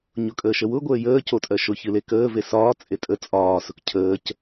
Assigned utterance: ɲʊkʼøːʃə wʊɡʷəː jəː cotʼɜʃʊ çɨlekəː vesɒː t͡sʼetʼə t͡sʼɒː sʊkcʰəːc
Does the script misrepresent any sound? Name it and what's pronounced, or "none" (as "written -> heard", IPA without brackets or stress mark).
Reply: øː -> əː